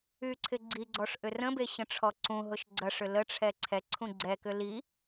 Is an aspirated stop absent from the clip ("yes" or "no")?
no